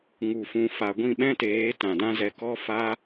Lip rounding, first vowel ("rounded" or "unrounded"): rounded